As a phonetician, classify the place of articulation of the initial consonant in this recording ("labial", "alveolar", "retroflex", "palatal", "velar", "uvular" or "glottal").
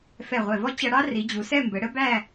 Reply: labial